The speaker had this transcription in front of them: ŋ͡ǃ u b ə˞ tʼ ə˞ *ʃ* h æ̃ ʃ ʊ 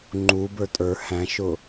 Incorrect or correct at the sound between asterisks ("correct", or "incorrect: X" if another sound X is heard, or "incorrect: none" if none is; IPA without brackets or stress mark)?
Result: incorrect: none